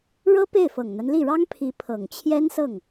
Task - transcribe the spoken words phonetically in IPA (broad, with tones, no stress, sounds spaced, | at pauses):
ɻ ɤ˥ p e˥˩ ɪ̯ f ɤ˨˩ ŋ n̪ a˦ n l i˥˩ ɻ ɑ˥ ŋ pʰ i˧˥ pʰ ɤ˨˩ ŋ t͡ɕʰ j ɛ˥ n s ɤ˥˩ ŋ